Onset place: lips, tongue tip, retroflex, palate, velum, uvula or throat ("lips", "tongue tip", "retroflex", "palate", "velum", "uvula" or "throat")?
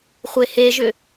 uvula